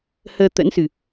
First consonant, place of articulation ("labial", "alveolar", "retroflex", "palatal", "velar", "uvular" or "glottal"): glottal